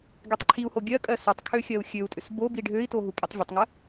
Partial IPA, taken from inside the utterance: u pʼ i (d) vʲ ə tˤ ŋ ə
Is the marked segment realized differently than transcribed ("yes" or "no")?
yes